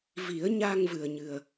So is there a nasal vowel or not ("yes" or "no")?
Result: no